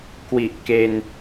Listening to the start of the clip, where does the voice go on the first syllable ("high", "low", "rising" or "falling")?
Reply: low